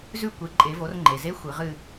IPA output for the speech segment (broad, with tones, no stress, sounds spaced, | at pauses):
z ʉ˦˨ kʷ e˩˧ ǃʼ e˩˧ v o˩˧ r ŋ͡ǃ e˩ z e˧˥ xʷ ɨ˩˧ ʁ ɨ˦˨